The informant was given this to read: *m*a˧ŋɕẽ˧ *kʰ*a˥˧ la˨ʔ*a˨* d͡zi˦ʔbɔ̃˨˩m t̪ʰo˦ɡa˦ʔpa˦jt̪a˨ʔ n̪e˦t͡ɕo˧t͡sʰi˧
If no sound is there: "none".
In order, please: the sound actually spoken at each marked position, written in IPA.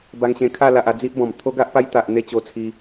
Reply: b, kʰ, a˧

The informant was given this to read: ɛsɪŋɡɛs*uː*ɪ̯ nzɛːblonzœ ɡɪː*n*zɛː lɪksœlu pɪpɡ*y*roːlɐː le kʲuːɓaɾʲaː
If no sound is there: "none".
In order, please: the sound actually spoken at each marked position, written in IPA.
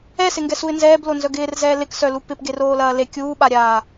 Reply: u, r, e

